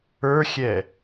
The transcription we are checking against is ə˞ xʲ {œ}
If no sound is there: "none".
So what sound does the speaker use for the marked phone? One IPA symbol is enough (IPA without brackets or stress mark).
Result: ɛ